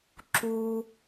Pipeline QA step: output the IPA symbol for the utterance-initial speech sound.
ǁ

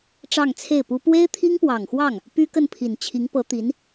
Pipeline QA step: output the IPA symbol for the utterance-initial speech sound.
ʈ͡ʂ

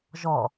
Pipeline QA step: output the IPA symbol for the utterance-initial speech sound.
ʒ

